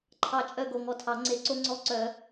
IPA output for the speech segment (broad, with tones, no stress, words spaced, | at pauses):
ǃʰɑ˧˩ t͡ʃʼœ˥˩ ɡo˧˩ŋɔ˧˩tʰɑ˨˩˦ ŋ͡ǀe˨˩˦ǀo˦ŋ͡ǀɔ˦ǀœ˨˩˦